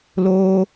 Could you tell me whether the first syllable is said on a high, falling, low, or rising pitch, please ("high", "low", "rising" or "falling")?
high